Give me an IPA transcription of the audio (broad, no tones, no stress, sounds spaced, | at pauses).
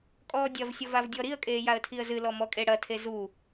kʼ ɔː dʲ ɐ v sʲ ɔ v a v dʲ ɔ ɾ i ə̯ kʼ eː j a ə̯ tʰ i ə̯ z ɨ l ɔ m ɔ kʼ e ɽ ɐ tʰ e z u